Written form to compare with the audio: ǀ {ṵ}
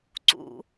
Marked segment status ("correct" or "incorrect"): correct